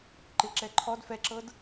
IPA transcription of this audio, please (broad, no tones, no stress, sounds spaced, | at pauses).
ǃ ɪ ǁ ɛ ǃʰ ɔ d f ɛ ǁ ɤ d